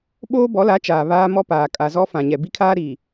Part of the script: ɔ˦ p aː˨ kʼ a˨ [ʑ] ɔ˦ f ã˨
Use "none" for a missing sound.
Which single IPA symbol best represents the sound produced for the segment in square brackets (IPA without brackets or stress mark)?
z